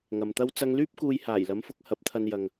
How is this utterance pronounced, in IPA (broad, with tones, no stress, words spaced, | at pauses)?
ŋɐ˨mt̪ɐ˥w t͡sɐ˧ŋlyː˥p̚ kuː˧jhaː˨˩jlɐ˨˥mfʊ˨˥k̚ hɐ˨˥p̚t̪ʰɐ˧njɐ˨ŋ